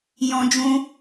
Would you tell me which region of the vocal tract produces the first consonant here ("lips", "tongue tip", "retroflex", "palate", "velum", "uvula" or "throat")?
palate